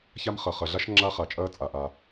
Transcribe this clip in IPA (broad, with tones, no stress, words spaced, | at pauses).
ça˥m χɐ˩χɐ˩ɮa˥ʃ ŋ͡ǁa˥χa˩t͡ʃʼɐː˥ t͡sʼa˩ʔa˩